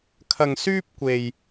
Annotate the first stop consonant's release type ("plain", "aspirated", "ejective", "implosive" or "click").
aspirated